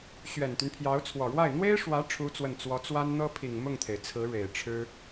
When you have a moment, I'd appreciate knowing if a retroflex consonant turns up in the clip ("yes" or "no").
yes